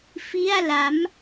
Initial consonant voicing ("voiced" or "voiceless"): voiceless